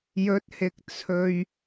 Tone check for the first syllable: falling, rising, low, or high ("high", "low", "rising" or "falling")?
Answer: rising